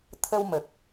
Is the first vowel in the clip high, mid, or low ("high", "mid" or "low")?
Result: mid